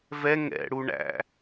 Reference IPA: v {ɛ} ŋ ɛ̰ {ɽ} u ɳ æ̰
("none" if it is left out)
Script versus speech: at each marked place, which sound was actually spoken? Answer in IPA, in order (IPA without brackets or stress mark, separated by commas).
ɛ, ɽ